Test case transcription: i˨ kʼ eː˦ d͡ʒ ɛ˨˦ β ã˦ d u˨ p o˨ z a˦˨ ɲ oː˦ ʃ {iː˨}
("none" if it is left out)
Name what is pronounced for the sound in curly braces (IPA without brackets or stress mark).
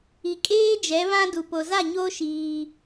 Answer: iː˦